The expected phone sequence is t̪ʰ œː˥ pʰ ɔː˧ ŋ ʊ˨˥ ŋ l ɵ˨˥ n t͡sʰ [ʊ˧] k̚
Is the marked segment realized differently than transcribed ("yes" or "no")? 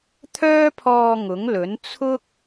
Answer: yes